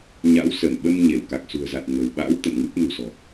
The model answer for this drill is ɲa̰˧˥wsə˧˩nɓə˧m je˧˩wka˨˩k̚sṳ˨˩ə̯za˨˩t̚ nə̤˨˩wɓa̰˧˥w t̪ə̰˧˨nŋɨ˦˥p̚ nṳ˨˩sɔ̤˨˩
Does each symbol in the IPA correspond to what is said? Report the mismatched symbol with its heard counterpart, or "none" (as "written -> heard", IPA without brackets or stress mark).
j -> ɲ